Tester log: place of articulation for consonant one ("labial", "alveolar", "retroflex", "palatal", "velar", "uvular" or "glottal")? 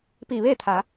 labial